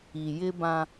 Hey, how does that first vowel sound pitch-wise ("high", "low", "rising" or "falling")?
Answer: low